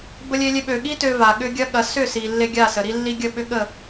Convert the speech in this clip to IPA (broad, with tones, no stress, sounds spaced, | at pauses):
b ə˦ lʲ e˦ lʲ e˦ ɓ ø˨ ɠ i˦ t ø˦ v a˨ ɠ ʏ˦ ɡʲ ɐ˦ ɠ ɐ˨˦ s ʏ˦˨ s i˨ lː e˦ ɡʲ a˦˨ s ə˨ ɾ i˦ lː i˦ ɡʲ ə˦˨ ɓ ʏ˦ ɠ ə˦˨